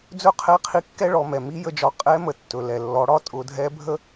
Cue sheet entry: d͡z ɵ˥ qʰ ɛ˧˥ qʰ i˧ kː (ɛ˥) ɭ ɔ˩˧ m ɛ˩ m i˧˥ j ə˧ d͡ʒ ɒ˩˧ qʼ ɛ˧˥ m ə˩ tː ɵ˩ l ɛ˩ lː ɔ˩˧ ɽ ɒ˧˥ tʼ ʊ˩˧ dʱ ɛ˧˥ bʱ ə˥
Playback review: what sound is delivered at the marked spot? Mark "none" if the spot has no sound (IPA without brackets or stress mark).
ɛ˥